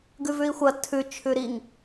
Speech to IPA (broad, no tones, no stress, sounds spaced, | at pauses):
ɡ ʉ v ʉ i̯ xʷ ɐ tʰ ʉ t͡ʃʰ ʉ ɾ i ŋ